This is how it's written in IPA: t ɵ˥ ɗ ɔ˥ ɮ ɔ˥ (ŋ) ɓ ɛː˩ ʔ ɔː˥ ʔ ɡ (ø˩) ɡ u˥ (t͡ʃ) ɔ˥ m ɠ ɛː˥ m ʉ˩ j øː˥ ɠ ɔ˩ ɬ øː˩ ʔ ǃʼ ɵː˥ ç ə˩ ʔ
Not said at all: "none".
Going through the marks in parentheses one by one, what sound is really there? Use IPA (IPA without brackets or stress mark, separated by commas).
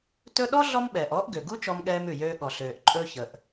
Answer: m, ø˩, t͡ʃ